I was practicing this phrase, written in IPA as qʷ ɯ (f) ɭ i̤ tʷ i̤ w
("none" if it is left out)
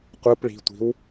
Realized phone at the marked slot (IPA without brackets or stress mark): p